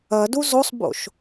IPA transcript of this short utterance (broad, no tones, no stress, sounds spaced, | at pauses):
ɐ d u z o sˤ b o̰ ʃ